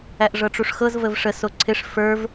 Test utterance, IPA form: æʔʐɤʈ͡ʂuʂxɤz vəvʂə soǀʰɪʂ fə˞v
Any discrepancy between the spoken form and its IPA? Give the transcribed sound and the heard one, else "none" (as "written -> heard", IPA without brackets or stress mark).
none